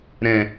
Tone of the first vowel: low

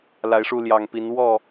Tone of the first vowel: rising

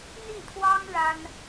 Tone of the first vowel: falling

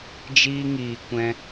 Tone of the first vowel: high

